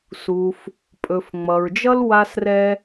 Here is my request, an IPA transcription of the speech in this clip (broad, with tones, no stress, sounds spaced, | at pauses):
s u˩ f | pʼ ɵ˩ f ŋ͡m ʌ˩ ɹ d͡ʒ ʌ˥ l w a˥ s r ɛ˥